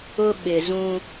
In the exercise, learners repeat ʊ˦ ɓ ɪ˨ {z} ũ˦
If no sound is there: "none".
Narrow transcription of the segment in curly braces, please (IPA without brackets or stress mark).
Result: z